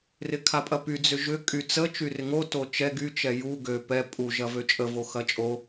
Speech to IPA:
r ɪ kʰ a pʼ ɐ p y d͡z ʏ ʒ ʏ kʼ y t͡s ə t͡ʃ y r ɪ ŋ o t o t͡ʃ ɛ ɡ y t͡ʃ ɛ j u ɡ ø p ɛ pʼ u ʒ ɐ v ø t͡ʃʼ ə v o x ɐ t͡ʃʼ o

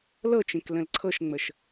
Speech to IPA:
l ɤ t͡ʃ ẽ k l ə̃ l ǀʰ ɤ ʃ ŋ͡m ə ʃ

